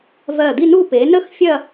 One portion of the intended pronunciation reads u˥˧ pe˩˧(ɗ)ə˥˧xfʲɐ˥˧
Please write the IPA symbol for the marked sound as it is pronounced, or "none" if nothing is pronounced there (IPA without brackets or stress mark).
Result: n